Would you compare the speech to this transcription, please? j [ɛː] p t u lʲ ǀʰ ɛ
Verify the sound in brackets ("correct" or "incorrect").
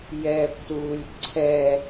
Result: correct